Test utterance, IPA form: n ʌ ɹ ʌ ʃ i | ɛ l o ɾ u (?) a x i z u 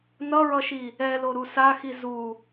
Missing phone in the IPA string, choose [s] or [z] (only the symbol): s